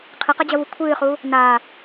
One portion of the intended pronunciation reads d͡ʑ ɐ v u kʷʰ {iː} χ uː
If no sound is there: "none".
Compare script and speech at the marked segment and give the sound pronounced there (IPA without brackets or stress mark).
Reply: ɨː